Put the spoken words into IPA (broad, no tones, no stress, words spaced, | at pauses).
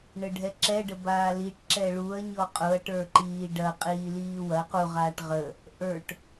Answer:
ɳəɖʱɛǁɛ ɖəbaːliʈ ǁɛɭuɐ̯ ɲɔqʼʊɐ̯ ʈə˞ǃiːɖɐ qʼiːliːwɐ qu ʁaʈʁə | ʔə˞ʈ